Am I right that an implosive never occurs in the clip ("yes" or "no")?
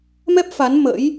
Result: yes